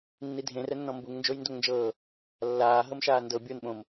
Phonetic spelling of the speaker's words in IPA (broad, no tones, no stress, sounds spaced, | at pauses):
nː i dʱ ẽ r ɛ nː ɔ̃ m b u ŋ n d͡ʒ o j n d o ŋ n d͡ʒ ɤː | lː aː ɦ ɤ m ʃ aː n d ɤ bʲ o n ɓ õ m